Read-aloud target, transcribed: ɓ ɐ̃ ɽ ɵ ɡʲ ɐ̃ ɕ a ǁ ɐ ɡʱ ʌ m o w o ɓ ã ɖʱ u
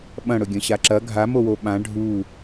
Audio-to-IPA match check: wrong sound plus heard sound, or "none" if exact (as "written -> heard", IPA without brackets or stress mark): ʌ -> a